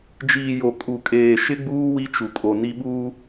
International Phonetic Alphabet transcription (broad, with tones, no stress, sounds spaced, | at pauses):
d͡ʒ iː˨ j o˨ kʼ u˨ kʼ eː˨ ʃ ɪ˦ ɡ͡b uː˦ w i˦ t͡ʃ u˨ kʼ o˨ n i˦ ɓ uː˦